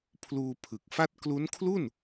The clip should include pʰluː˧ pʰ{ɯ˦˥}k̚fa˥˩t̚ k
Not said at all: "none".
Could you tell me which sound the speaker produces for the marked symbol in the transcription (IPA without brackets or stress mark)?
ɯ˨˩